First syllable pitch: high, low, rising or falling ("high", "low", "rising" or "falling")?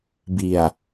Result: low